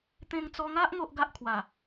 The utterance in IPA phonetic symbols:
t̪ ẽ˧ ŋ t͡s ɔ˧ ŋ a˦ ʔ ŋ o˦ ʔ ɡ a˦ ʔ kʰ w a˨˩

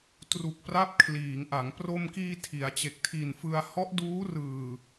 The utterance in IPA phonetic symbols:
t r u˨˩ k̚ p r a˦˥ p̚ kʰ l iː˩˦ ŋ ʔ a˩˦ ŋ p r o˧ m k iː˧ tʰ i˩˦ a̯ t͡ɕ e˨˩ k̚ tʰ i˨˩ n f ɯ˧ a̯ h ɔ˦˥ ʔ d uː˦˥ r ɯː˨˩

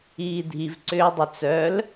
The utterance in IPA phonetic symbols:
iː dʱ i v ǀ ʏː dˤ ʏ t͡s œ l

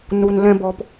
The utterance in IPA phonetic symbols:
n u˧ n l ɛ̃˧ b ɔ˧ p

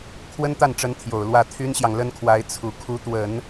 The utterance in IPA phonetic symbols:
kʰ w ə˥ n t̪ a˥˩ n ʈ͡ʂ ə˧˥ n t̪ʰ j o˨˩ ʊ̯ l w ä˥˩ t̪ʰ y˥ n ɕ j ɑ˨ ŋ l ə˥ n kʰ w a˧˥ ɪ̯ t͡sʰ u˨˩ kʰ u˧˥ t̪ w ə˨˩˦ n

